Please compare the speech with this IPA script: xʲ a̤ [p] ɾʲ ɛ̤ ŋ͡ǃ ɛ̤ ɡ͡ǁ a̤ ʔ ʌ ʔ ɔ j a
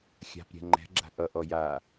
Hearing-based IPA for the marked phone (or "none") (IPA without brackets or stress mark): p